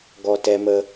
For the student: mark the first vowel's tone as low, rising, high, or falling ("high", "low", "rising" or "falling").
high